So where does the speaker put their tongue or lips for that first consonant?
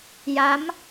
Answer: palate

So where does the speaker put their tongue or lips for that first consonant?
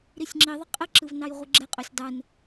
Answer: tongue tip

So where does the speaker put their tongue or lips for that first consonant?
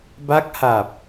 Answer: lips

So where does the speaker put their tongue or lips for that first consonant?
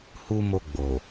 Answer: throat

